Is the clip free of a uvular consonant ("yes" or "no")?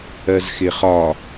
no